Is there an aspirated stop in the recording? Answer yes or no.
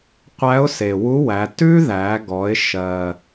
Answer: no